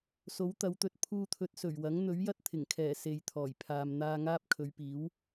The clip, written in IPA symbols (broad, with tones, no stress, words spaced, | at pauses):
so˨˥wt̪ɐ˨˧wt̪ɵ˨˥t̚ pʰuː˧t̪ʰɵ˨˥t̚ sɵ˨˩ɥwɐ˨˥ŋ n̪ɵ˨˥ɥjɐ˥t̚ t̪ʰɪ˨˩ŋkʰɛː˨˩ se˨jt̪ʰɔː˨˩jpʰaː˨mn̪aː˧ ŋaː˥p̚kʰɵ˨˧ɥpiː˨˥w